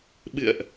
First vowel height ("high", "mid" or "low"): high